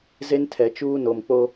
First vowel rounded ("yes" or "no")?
no